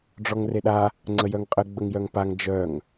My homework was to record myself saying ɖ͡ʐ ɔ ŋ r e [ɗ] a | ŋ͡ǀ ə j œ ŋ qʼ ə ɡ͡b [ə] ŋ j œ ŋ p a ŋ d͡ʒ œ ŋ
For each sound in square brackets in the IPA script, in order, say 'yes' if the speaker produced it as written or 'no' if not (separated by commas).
yes, yes